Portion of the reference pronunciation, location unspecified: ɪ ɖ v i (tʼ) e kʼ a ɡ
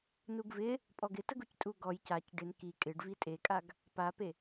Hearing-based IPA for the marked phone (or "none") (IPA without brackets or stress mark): tʼ